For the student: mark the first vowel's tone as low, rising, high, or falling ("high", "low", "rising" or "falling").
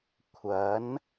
rising